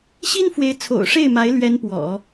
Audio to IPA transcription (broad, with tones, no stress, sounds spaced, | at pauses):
ɕ i˥ n f w e˧˥ ɪ̯ t͡sʰ o̰˨˩ ʊ̯ ʂ e˥˩ ɪ̯ m a˧˥ ɪ̯ l ɥ ɛ˧˥ n p w ɔ̰˨˩˦